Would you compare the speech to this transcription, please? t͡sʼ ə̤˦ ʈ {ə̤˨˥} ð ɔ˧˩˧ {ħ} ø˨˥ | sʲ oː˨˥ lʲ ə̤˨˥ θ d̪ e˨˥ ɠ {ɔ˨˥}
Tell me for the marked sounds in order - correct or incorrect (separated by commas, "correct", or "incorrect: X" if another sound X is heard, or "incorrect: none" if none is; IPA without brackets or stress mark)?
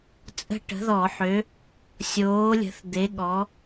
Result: correct, correct, correct